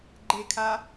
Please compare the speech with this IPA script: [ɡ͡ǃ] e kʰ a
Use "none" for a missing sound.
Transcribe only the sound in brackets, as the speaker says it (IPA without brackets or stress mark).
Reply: ɡ͡ǃ